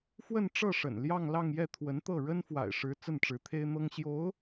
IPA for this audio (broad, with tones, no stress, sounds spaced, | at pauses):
f w ə˥˧ n ʈ͡ʂ ɤ˥˩ ʂ ə̰˨˩ n l j ɑ˥˧ ŋ l ɑ˥˧ ŋ j ɛ˥˩ t̪ʰ w ə˧˥ n t̪ ɤ˥˩ ɻ ə˥ n f w a̰˨˩ ɪ̯ ʂ ɻ̩˧˥ t͡s ə˥˩ n ʈ͡ʂ ɻ̩˧˥ t̪ʰ e˥ ɪ̯ n̪ ɤ˥ ŋ ɕ j o˧˥ ʊ̯